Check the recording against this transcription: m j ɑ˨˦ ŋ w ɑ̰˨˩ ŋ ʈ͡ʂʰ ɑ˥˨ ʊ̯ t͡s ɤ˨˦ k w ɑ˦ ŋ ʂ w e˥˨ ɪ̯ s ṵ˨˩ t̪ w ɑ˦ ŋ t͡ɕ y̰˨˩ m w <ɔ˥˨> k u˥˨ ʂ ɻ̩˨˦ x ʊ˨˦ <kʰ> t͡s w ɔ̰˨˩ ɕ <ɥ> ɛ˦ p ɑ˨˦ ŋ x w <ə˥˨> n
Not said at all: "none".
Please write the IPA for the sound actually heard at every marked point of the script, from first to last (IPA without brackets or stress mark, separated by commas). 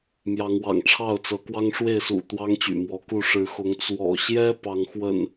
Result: ɔ˨˦, ŋ, j, ə̰˨˩